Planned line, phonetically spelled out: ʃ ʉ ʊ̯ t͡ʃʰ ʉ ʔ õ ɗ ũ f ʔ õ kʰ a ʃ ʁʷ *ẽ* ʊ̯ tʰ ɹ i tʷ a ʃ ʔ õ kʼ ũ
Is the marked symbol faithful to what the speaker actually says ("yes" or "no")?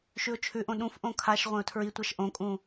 yes